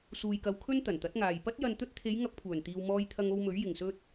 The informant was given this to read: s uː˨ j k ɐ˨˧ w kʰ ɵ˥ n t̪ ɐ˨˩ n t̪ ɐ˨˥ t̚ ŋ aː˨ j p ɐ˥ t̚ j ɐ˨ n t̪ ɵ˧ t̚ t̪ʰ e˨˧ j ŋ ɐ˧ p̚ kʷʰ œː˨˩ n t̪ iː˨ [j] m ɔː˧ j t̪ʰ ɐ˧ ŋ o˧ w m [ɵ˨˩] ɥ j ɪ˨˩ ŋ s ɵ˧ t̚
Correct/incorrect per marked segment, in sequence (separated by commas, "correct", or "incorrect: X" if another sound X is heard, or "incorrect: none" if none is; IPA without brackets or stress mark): incorrect: w, incorrect: ɵ˨˥